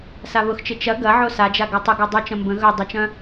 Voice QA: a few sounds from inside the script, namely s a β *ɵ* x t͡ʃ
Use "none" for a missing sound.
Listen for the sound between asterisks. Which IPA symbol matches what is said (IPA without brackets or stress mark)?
ʊ